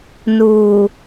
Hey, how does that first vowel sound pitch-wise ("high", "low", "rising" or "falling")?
low